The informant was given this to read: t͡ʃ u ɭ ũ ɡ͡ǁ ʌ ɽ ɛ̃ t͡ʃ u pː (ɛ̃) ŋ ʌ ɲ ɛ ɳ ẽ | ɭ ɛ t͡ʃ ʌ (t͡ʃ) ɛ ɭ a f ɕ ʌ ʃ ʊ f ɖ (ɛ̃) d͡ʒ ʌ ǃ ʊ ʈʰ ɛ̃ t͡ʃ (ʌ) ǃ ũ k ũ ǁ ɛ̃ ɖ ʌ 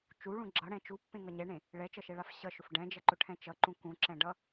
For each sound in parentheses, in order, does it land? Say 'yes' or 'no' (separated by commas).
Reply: no, no, yes, yes